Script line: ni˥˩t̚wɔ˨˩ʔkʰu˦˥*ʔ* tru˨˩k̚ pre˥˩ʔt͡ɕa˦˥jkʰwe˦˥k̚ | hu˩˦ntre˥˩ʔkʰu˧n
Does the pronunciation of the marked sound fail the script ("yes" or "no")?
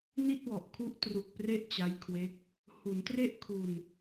no